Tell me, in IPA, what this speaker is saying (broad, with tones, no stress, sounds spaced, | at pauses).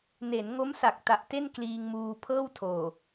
n e˩˦ n ŋ o˦˥ m s a˨˩ k̚ t a˨˩ ʔ t e˥˩ n k l iː˧ ŋ m uː˧ pʰ ɤː˥˩ w tʰ oː˨˩